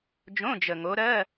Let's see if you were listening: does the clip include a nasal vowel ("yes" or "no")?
yes